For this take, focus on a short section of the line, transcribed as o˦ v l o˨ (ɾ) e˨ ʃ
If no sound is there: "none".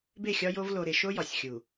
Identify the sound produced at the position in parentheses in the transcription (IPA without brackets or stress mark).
ɾ